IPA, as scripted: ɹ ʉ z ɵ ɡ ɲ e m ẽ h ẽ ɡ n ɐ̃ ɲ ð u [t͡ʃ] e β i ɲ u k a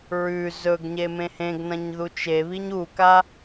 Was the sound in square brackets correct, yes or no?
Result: yes